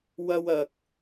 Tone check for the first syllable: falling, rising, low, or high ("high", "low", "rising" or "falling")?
high